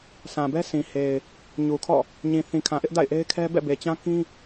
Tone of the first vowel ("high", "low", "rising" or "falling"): low